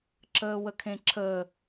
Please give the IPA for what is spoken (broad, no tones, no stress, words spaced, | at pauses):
ǁəːwəkʰẽǁʰə